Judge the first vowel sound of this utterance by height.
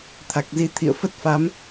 low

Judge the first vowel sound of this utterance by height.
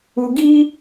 high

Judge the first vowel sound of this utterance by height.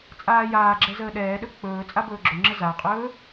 low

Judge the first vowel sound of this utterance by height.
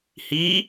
high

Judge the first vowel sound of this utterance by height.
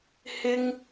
high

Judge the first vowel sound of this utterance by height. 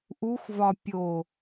high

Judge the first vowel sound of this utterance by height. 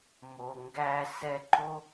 mid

